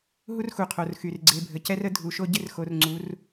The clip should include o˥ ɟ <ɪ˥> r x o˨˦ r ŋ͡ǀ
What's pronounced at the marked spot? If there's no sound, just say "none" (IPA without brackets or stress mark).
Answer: ɪ˥